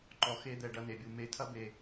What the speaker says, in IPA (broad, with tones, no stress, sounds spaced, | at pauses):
ǃ ɔ˨ x e˧ d̪ ɛ˨ ɖ ɐ˧ n e˨ bʲ u˨ m e˧ tʰ ɐ˦ b e˧